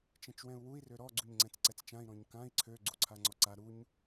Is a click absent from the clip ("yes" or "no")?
no